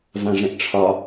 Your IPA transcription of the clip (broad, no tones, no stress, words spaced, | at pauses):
vãʐɛ̃ʔʈ͡ʂʰɒ